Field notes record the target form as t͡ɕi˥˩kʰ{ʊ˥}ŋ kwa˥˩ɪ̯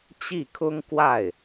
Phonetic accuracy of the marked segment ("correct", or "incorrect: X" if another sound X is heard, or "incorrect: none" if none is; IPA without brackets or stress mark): correct